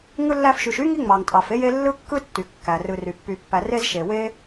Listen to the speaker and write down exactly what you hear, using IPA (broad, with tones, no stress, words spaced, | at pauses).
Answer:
ŋɯ˦lːæ˦fʃy˨ʃ y˥ŋi˦ŋ͡mɑ˩ŋ tʼɑ˩fe˥je˦ lːɯ˥kːɯ˥tːy˩ kːæ˩rɯ˨ ry˩pːy˨pːæ˨ re˥zʃe˩ we˥